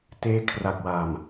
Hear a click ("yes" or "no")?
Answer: no